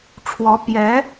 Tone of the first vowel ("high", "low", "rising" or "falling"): rising